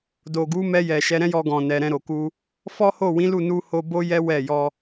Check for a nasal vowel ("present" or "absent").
present